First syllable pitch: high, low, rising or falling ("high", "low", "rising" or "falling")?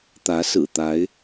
rising